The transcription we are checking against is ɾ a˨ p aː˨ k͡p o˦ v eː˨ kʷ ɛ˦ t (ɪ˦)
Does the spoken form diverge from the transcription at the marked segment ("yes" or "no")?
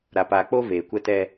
yes